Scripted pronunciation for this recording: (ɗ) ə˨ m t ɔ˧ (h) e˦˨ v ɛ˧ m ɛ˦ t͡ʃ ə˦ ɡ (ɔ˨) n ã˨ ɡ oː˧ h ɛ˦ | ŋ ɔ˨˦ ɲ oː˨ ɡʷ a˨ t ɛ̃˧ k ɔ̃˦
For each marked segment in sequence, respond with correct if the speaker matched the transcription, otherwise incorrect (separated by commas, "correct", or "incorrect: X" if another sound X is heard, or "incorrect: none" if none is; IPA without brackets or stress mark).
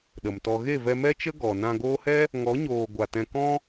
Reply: correct, incorrect: ɣ, correct